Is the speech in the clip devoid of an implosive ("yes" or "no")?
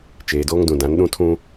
no